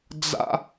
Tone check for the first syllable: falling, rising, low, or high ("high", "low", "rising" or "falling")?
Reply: high